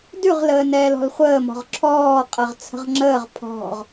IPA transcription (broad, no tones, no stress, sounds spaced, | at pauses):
d ʉ ʁ l əː n ɛː l ɔ̤ l χʷ əː m ɔ̤ ʁ ǁʰ ɔː qʼ ɐ ʁ t͡sʰ ə̤ ʁ ŋ͡ǁ əː ʁ pʰ ɔ̤ ʁ